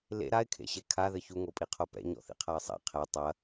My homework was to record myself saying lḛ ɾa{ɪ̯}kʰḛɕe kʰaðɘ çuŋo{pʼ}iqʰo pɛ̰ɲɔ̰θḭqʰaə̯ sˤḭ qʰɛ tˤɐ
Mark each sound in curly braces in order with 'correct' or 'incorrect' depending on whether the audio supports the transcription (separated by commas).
correct, correct